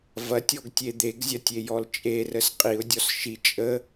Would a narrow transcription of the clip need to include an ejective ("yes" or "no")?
yes